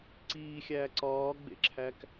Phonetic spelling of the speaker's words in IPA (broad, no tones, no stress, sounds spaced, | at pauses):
ǀ iː xʲ æː ǀ ɒː ɡ͡b ḛ ǁʰ æ k